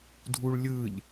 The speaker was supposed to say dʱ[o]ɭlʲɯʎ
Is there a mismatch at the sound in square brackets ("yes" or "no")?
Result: yes